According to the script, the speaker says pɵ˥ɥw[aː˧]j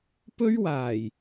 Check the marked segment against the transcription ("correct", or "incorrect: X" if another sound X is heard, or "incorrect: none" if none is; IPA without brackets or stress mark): incorrect: aː˨˩